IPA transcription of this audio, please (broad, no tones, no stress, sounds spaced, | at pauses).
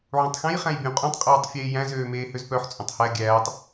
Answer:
ʕ ũ tˤ x ɛ̃ j χ æ̃ j bʲ õ qʼ ũ tˤ qʼ oː tˤ fʲ eː j æ̃ z øː m eː h ø z p œ ħ t͡sʼ õ tˤ h æ ɡʲ æː tˤ